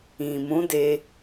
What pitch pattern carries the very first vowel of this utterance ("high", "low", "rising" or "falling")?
low